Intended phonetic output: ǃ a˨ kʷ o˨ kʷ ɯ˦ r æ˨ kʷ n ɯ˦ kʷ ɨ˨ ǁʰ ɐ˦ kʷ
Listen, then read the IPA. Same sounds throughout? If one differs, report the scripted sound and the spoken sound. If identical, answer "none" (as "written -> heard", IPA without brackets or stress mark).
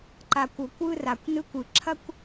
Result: æ˨ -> a˨